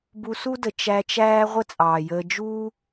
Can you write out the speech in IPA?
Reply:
bu˧su˦də˨ t͡ʃæ˧t͡ʃæː˦ ʁʷə˦t͡sʼɑː˨jəː˧ d͡ʒuː˦

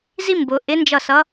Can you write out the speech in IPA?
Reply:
zi˥mbʊ˩˧ ʔɪ˧˥nd͡ʒʌ˦˨sʌ˧˥

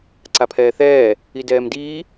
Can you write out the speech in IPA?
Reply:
ǀapʰɛːθɛː | idɛːmdiː

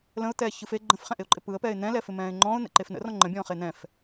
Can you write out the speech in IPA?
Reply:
lə̃ʊ̯t̪ɛːçɯf e ɡ͡ǃə̃fχɛ̃ʔɪʊ̯ǃʼɪ pɯə̯pɛːɪ̯ n̪ɛ̃lɛfɪmɛ̃ːɪ̯ ŋ͡ǃɔ̃ːʊ̯n̪ɛ̰ǃef nə̰rɔ̃ ŋ͡ǃə̃bʲɔ̃ːχe n̪ɛ̃f

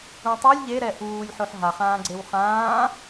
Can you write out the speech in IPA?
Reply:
ũtˤulʲ ʎeɾɛ ʔuːlʲħoħ ɦaχãːɡ͡ǀew χãː

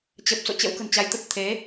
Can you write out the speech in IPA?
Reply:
t͡ɕə˨˩p̚ so̰˧˨t͡ɕə̰˧˥w kə̤˨˩nt͡ɕa˨˦j t̪ə˦˥t̚ t̪ʰe˨˦

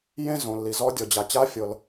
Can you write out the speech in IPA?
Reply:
jẽ˥zõ˩lːi˩zɔ˧˥ dʲɔ˩ d͡ʑa˩t͡ɕa˧˥fʲɤ˩l

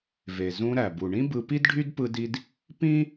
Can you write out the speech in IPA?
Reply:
ve˩zũ˧ ɾæ˩bu˩ ɳĩ˥ bɯ˧pi˥d ɖʱy˥dpɯ˧di˧d | pĩ˥

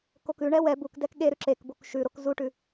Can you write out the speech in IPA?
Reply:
kokʉɳɛ wɛ buk dɛkɠeɾʉ ǁekbok ʃʉɾok zuʈʉ

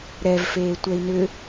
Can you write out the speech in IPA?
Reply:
ɾɛvfeː tʷɛi̯nʏ

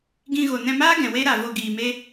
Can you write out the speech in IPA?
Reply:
ɡĩ˧ɣo˨ nɛ̃˧maː˦ ɡɛ̃˨we˦ɾa˨ vo˨ ɡiː˨ me˦

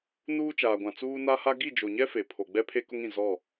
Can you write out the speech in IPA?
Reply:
nuː˦t͡ʃaː˨ɡʷã˨ t͡suː˦ na˦ha˦ ɡi˦˨d͡ʒo˨ɲɛ˦ fe˨pʰo˨ɡ͡bɛ˦ pʰe˦kʊ˦ŋĩ˨ zɔ˦˨

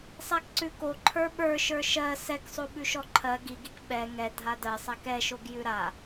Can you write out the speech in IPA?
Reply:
sˤakǀʉko ǃʰə˞ɓə˞ ʃə˞ʃɜ sɛksˤo ɓʉʃɔǃʰɜ ɡiɡik ɓɛ ŋɛ dʱadɜsˤak ɛʃoɡ jʉɾa

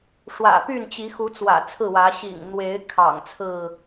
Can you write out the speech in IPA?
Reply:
ʂwä̰˨˩py˥˨n t͡ɕi˨˦xu˨˦ t͡swä̰˨˩t͡sʰɹ̩˥˨wä˨˦ ɕḭ˨˩ŋn̪we˨˦ɪ̯ kʰɑ̰˨˩ŋ t͡sʰɹ̩˥˨

